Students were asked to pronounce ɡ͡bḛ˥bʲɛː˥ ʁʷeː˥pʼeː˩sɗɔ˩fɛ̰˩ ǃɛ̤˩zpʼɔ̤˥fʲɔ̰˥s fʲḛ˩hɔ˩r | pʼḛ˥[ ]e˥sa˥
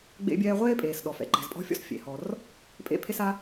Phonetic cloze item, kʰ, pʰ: pʰ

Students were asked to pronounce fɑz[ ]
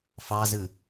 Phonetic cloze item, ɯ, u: ɯ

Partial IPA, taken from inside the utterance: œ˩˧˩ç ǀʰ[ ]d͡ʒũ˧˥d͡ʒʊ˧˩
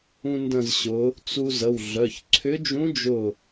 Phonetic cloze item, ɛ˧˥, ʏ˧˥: ʏ˧˥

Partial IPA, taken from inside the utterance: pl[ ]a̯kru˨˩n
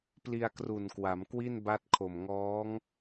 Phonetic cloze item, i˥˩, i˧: i˧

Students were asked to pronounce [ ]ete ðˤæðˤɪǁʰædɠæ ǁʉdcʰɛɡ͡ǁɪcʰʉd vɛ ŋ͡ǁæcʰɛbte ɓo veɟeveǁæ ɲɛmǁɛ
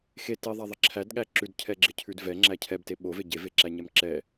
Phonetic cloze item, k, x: x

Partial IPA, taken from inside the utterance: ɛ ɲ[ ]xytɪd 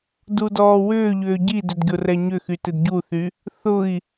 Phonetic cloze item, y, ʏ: ʏ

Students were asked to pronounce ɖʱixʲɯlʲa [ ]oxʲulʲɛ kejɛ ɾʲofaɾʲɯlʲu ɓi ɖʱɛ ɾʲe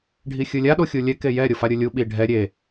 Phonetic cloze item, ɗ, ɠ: ɗ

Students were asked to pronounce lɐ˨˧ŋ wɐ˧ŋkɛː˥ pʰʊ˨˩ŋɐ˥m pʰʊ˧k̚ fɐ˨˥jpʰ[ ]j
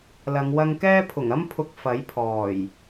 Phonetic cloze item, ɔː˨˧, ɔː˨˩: ɔː˨˩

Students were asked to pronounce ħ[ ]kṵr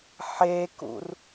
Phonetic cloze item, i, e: e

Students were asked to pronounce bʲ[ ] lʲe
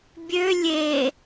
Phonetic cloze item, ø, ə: ø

